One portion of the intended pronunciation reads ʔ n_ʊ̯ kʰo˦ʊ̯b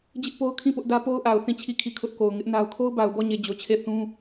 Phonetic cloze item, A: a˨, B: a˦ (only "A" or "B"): B